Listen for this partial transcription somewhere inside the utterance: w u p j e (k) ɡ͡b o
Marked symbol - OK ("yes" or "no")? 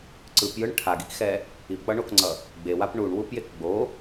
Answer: yes